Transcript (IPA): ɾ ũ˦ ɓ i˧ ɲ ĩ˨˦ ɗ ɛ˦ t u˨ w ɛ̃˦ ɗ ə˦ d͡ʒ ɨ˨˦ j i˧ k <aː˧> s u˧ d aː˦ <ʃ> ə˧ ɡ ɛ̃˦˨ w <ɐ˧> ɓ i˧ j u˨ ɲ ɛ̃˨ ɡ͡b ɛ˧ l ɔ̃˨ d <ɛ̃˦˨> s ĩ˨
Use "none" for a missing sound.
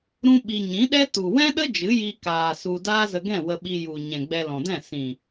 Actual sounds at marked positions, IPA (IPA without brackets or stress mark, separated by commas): aː˨, z, ə˧, ɛ̃˦˨